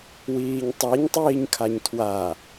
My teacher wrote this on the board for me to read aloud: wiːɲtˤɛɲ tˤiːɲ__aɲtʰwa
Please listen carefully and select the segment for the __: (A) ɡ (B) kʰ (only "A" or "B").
B